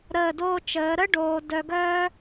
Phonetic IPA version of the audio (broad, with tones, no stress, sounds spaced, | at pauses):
ɾ əː˧˩ d oː˧ t͡ʃ əː˩˧ ɾ ə˥ ɖ oː˧ d œ˧ ɡ œː˥